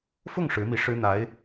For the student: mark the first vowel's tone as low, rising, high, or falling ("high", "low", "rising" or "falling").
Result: falling